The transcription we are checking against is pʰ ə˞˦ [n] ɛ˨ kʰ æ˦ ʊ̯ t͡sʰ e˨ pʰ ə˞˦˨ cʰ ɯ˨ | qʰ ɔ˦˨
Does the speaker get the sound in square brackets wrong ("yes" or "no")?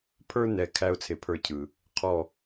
no